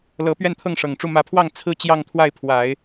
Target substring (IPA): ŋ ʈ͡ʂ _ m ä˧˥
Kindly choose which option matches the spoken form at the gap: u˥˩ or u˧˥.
u˥˩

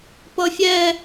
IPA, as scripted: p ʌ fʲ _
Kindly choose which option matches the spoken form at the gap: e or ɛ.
ɛ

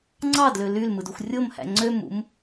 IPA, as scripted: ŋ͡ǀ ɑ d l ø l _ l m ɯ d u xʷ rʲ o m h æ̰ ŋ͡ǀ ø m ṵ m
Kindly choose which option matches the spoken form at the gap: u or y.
y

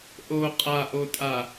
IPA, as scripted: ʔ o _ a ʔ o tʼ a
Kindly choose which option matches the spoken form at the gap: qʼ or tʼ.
qʼ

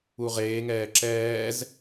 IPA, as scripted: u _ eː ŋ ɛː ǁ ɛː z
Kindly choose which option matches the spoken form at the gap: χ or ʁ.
ʁ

